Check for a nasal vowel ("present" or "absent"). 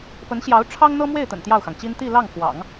absent